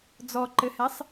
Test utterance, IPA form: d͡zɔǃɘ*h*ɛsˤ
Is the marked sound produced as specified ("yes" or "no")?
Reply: yes